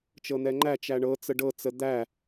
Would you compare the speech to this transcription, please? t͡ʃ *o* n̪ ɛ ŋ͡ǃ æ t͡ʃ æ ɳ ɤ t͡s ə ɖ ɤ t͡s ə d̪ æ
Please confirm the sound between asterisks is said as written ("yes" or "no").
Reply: no